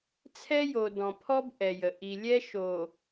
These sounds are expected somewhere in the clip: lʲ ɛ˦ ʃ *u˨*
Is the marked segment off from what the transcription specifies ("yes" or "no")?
yes